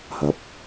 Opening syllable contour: rising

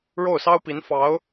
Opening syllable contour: falling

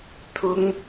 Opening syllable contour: high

